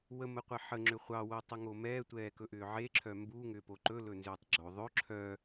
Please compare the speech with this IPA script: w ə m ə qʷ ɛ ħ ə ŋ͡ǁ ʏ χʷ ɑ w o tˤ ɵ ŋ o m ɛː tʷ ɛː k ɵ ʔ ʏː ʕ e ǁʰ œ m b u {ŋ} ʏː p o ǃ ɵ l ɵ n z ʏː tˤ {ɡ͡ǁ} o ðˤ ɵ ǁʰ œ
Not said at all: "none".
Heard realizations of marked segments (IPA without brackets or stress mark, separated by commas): ŋ, ɡ͡ǁ